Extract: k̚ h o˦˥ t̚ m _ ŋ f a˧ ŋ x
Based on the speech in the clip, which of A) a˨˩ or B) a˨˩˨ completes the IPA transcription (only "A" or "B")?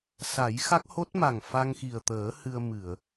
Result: A